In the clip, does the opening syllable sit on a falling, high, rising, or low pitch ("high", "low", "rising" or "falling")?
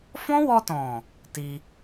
high